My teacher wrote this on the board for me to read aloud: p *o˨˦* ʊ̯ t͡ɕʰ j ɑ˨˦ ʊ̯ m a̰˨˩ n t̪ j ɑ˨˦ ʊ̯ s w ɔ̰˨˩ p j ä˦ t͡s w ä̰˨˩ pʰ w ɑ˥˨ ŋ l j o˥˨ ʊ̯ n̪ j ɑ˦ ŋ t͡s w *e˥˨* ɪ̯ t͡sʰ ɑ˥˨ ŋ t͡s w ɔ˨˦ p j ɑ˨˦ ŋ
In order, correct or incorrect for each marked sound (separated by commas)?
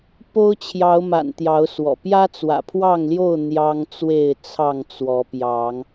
incorrect, correct